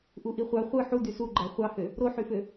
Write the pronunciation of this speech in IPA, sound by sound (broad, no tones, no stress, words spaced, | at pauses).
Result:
ʔuʔiχʷɑ χʷɯ ħu dysuɡ͡ǃæ χʷɑhø | ɾoħyfø